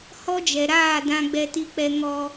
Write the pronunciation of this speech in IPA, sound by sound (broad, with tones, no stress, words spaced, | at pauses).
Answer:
hɔ˦d͡ʒɛ˨ɾaː˦˨ dã˦ɡ͡bɛ˦ ti˦k͡pɛ˦ ŋɔ˦